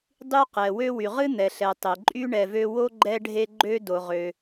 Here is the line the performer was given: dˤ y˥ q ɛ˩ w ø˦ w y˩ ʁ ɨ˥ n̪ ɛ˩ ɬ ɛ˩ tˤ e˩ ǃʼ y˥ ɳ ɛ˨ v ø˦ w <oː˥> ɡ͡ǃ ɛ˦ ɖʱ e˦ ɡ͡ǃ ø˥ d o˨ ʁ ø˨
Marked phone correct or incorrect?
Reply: incorrect